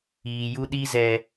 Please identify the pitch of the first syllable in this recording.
low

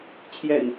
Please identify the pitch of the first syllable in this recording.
low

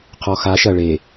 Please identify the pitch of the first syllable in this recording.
low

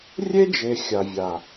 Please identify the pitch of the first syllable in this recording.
high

